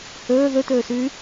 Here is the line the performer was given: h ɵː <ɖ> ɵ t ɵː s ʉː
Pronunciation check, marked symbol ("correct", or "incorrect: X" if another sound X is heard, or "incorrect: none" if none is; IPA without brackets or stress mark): incorrect: ð